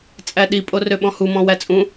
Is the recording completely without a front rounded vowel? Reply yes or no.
no